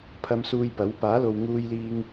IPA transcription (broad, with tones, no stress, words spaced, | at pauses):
pʰɐ˧msuː˧jpɐ˨˥w paː˨˥lo˨wŋuː˧jliː˧ŋ